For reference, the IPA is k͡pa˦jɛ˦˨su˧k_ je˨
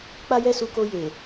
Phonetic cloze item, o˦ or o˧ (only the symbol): o˧